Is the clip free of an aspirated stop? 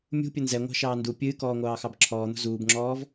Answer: no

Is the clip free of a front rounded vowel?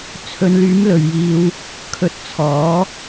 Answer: no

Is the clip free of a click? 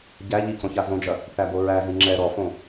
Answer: no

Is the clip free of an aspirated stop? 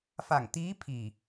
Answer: no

